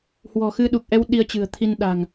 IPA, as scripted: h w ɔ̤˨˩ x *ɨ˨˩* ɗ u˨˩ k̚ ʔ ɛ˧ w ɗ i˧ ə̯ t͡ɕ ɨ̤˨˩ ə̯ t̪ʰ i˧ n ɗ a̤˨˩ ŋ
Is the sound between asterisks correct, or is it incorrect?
incorrect